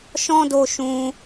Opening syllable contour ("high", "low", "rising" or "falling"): high